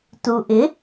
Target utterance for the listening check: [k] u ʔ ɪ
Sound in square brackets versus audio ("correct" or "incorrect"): incorrect